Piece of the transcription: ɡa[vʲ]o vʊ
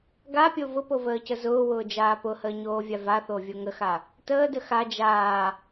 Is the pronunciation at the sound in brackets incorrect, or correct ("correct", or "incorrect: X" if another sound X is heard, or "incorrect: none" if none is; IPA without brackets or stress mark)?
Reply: incorrect: pʲ